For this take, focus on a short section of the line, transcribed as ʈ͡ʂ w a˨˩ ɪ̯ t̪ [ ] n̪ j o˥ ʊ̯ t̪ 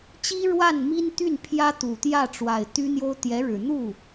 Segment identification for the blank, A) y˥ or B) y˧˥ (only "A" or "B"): A